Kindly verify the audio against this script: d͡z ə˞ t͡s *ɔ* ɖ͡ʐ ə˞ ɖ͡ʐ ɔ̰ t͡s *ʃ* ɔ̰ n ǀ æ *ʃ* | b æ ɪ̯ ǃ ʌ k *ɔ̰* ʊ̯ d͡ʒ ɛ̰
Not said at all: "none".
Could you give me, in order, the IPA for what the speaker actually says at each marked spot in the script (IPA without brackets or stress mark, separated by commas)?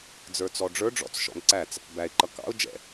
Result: ɔ, ʃ, t͡s, ɑ̰